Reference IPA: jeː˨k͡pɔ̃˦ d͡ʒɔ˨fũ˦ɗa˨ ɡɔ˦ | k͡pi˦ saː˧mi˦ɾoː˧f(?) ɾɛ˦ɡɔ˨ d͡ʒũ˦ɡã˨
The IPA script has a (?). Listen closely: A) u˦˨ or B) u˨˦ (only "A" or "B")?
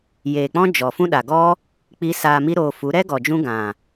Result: B